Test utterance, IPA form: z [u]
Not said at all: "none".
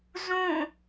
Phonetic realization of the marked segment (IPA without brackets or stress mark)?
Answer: ũ